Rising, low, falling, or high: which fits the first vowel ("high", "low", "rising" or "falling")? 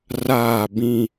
falling